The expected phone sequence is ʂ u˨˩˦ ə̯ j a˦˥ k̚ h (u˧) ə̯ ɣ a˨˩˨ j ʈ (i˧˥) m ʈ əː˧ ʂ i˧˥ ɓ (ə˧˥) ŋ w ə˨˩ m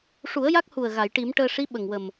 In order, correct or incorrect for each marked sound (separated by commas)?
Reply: incorrect, incorrect, incorrect